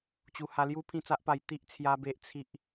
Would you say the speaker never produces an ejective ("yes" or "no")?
yes